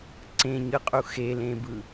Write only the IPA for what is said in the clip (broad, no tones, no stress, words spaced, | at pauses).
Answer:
ǀẽɲɯqʼu xelẽbɯ